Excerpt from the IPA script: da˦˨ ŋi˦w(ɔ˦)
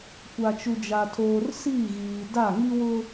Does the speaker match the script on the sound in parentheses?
no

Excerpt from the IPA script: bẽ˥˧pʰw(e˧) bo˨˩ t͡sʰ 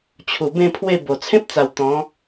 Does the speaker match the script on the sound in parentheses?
no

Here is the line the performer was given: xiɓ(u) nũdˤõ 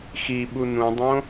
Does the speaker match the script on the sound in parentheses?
yes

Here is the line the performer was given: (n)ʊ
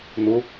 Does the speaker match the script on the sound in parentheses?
yes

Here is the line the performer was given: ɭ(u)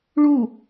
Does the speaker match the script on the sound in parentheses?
yes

